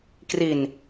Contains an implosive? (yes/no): no